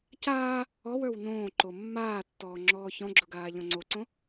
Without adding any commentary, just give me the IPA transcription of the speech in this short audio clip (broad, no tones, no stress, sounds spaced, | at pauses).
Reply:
c aː | ɔ w ə˞ w n õː ǃ o mː aː tː ɔː ŋ͡ǁ ɔː ç ɔ̃ ɡ͡ǁ ʊ ɡ aː ʎ ɔ̃ ŋ͡ǀ o ǀ õ